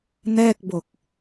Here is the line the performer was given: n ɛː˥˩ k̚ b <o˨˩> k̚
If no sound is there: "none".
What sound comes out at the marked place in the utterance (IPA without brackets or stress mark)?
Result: o˨˩